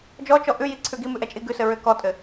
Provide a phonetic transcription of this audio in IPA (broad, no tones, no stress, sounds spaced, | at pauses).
d͡ʒ ɔ t͡ʃ ɔ ʔ ʉ j i ǀʰ ʉ ɡ i m ʉ ʔ ɛ t͡ʃʼ i ɡ ʉ s ɘ ɹ ʏ k ɔ tʼ ɘ